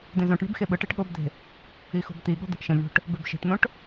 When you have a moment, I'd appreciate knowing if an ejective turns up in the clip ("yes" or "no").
no